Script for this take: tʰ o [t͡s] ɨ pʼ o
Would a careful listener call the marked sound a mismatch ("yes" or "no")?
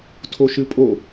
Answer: yes